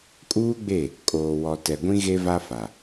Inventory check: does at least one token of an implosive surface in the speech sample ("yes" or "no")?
no